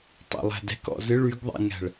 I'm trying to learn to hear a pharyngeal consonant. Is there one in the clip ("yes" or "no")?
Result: no